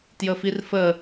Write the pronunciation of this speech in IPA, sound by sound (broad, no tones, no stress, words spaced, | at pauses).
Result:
tjəfirfə